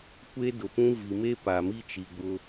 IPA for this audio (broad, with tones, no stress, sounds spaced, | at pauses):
kʷ e˦ d ʊ˨ p ũ˦ v i˨ m e˦ p a˨ m i˦ t͡ʃ i˨ ɡ͡b ʊ˦